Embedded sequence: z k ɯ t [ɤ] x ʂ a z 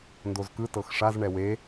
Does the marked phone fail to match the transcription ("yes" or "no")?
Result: no